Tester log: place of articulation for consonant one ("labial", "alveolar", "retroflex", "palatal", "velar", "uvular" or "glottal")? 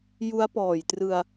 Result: palatal